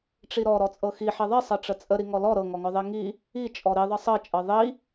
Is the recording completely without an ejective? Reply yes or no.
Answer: no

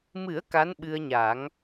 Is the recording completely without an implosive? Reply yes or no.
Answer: no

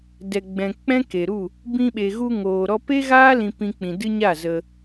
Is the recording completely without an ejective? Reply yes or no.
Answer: yes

